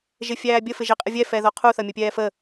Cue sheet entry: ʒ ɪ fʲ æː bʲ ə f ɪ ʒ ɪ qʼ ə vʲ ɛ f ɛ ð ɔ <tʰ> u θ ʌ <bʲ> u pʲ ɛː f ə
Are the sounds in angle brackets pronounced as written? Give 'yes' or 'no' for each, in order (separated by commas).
no, no